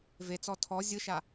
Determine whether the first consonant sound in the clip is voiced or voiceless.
voiced